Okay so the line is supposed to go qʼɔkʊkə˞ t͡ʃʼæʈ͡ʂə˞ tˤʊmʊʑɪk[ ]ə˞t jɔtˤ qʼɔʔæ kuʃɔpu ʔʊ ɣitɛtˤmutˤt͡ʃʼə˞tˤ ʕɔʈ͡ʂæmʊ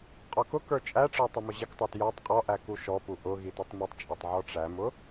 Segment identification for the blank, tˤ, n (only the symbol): tˤ